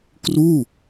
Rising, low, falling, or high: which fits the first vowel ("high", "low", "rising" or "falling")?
falling